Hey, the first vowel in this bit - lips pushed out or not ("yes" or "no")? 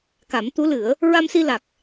no